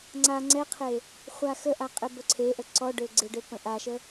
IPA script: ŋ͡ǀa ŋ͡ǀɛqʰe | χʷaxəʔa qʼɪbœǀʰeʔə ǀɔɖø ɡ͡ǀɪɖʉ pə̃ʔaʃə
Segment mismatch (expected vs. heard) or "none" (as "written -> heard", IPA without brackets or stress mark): ʉ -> ø